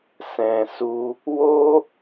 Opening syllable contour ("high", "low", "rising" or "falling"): low